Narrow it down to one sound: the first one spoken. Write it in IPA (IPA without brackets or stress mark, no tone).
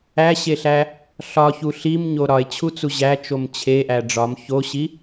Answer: æ